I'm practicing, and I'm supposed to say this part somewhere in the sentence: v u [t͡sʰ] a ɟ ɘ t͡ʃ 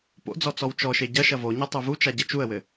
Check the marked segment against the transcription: incorrect: t͡ʃ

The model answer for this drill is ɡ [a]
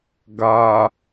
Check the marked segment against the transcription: correct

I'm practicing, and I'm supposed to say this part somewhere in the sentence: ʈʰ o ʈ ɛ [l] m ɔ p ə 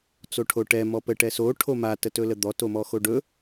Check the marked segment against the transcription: incorrect: none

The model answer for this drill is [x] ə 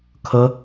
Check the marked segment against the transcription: incorrect: kʰ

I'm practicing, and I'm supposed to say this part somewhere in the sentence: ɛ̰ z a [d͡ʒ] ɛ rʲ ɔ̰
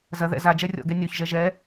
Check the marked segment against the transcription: correct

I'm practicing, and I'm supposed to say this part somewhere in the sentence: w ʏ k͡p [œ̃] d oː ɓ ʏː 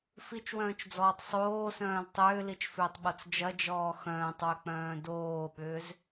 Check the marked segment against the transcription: incorrect: œ̃ː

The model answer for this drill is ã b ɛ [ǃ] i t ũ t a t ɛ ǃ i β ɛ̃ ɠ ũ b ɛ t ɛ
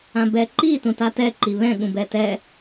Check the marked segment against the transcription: correct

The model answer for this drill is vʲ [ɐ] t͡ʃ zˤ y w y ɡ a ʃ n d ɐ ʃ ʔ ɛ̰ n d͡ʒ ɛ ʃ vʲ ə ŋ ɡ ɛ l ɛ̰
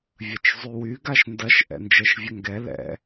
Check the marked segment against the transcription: correct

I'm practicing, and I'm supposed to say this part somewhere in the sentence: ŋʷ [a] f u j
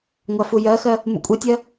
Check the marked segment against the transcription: incorrect: ɑ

